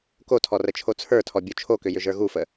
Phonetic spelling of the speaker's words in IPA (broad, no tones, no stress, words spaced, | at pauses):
kotʰɔ rət͡ʃʰot͡sʰə˞tʰɔ bʲot͡ʃʰokʏ jʏʒə˞ɣufə